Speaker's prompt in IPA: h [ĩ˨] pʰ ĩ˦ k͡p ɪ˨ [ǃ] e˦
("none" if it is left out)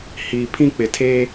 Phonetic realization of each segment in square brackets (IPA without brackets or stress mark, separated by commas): i˨, tʰ